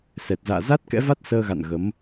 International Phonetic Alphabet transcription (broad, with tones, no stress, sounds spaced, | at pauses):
s ɛ˨˩ t̚ z a̰ː˧˨ z a˦˥ t̚ k ɛ̰˧˥ v a˦˥ t̚ s əː˧ ɣ a̰˧˨ n ɣ ə˨˦ m